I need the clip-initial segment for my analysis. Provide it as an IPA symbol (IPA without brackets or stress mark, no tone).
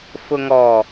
f